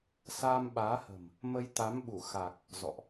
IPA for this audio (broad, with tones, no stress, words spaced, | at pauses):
saː˧mɓaː˨˦hə̤˨˩m | mə˧j t̪a˨˦mɓu˧˩ xa˨˩k̚ | zɔ̰˧˨ʔ